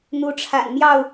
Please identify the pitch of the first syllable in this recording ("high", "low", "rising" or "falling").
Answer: rising